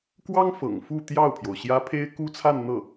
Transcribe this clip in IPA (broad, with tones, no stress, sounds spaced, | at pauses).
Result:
k w ɑ˥ ŋ f ɤ̰˨˩ ŋ f u˥˧ t̪ j ɑ˥˩ ʊ̯ pʰ j o˩ ʊ̯ ɕ j ä˥ pʰ e˥ ɪ̯ k u˥ t͡sʰ a˥˧ n n̪ ɤ˥˩